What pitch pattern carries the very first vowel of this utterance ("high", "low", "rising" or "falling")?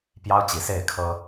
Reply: high